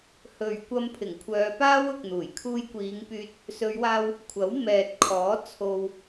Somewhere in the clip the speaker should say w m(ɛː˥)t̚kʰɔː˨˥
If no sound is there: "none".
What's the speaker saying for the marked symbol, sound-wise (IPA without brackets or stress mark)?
ɛː˨